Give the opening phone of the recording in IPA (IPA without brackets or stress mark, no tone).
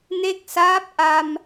n